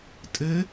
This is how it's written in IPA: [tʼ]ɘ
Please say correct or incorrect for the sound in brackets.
correct